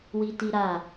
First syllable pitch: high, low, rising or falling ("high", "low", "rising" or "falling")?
high